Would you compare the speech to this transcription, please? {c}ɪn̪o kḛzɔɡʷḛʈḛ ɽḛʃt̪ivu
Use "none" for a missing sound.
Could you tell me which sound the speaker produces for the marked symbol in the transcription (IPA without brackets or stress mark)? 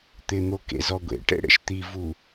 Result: t̪